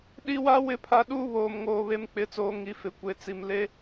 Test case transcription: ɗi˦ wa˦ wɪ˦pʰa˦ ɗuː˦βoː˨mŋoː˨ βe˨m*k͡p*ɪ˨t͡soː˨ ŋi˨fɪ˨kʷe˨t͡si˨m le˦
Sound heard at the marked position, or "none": k͡p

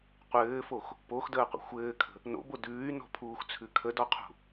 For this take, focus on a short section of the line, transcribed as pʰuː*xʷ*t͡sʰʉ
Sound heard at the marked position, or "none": x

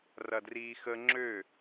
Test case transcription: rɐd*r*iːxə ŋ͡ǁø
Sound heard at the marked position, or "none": r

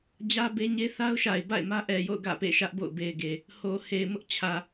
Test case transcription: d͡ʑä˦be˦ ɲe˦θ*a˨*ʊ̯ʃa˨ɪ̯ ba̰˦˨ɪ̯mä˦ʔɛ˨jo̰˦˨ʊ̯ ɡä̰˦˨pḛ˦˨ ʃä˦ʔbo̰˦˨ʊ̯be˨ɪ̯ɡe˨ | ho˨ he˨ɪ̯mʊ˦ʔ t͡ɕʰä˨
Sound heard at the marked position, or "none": a˦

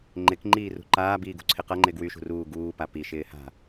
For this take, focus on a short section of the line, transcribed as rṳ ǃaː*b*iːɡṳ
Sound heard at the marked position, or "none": b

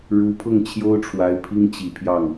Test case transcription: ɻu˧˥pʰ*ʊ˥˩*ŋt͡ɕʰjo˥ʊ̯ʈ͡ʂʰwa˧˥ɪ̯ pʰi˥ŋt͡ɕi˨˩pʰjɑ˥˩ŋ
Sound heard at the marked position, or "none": ʊ˥˩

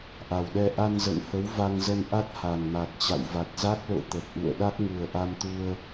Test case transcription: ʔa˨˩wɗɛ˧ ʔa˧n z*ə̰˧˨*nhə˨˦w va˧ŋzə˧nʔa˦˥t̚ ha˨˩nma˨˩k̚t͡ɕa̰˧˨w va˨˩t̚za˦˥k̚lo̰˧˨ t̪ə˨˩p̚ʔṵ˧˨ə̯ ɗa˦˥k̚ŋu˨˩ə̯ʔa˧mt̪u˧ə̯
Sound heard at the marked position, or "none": ə̰˧˨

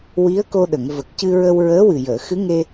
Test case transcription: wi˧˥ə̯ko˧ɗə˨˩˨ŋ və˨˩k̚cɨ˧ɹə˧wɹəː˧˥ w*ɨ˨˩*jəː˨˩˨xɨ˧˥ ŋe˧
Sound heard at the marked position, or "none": ɨ˨˩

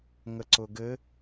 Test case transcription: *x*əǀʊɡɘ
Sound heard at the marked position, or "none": ŋ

